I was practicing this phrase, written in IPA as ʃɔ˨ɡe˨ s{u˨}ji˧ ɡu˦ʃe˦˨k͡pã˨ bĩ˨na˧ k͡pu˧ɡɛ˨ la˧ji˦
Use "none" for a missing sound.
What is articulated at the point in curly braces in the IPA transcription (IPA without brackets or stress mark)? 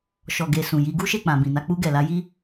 ũ˨